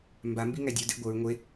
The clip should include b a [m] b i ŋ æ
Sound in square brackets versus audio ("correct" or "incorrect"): correct